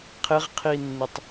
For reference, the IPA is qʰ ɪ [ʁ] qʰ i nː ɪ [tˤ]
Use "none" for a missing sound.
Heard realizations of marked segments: ʁ, tˤ

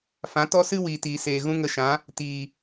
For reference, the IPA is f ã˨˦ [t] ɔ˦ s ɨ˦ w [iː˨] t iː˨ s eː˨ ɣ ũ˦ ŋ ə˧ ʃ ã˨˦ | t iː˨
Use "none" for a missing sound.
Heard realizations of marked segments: t, iː˨

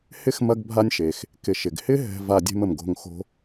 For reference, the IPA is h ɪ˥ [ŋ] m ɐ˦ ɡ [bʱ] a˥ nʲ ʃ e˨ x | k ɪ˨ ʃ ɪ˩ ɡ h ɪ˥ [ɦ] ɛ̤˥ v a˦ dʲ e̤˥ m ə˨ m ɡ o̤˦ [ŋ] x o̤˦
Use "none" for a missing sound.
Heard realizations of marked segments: x, bʱ, ɦ, ŋ

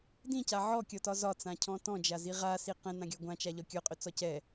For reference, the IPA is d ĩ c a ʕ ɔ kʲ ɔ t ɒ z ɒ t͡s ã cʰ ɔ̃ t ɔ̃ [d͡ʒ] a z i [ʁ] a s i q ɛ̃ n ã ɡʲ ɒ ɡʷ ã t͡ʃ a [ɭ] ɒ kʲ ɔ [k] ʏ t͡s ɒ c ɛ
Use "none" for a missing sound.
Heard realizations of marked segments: d͡ʒ, ʁ, ʎ, qʼ

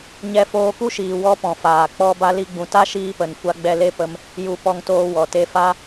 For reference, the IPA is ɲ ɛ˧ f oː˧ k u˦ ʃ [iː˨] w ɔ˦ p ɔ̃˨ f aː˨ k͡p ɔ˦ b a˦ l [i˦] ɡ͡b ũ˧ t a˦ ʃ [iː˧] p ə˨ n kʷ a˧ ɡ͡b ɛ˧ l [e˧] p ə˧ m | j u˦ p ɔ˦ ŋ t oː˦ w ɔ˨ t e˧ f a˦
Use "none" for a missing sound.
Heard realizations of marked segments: iː˨, i˦, iː˧, e˦

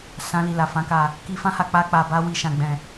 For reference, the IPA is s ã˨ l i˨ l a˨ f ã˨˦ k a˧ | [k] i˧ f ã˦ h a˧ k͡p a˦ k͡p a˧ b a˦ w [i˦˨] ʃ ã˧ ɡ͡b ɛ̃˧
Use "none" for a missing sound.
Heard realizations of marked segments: k, i˧

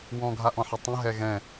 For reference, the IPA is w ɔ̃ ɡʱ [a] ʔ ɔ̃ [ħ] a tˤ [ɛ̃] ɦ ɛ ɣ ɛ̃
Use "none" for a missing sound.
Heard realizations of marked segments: a, ħ, ə̃

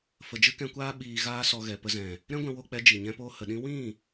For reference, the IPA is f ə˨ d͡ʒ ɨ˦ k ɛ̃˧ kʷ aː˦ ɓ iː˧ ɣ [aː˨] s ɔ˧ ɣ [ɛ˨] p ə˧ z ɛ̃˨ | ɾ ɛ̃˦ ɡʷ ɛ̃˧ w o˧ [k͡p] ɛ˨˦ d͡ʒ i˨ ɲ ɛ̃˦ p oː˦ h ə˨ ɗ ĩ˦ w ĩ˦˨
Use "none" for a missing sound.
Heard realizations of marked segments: aː˦, ɛ˨, k͡p

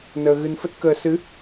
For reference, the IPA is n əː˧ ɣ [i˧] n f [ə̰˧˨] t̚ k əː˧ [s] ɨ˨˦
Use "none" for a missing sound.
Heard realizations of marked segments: ɨ˧, ə˦˥, s

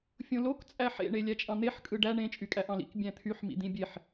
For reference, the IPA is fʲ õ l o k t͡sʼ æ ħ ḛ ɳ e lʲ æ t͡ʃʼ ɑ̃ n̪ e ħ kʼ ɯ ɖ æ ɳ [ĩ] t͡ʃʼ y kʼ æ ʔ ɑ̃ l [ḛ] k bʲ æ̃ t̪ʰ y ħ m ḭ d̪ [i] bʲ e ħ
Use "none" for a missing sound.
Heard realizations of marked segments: ẽ, ḭ, ĩ

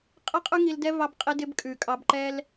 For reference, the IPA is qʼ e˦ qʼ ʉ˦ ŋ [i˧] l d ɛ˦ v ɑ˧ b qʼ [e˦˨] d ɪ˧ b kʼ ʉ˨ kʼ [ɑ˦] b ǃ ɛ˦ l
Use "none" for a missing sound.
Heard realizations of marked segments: i˧, e˧, ɑ˧

